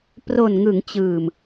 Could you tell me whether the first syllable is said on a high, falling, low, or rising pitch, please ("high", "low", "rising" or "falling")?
low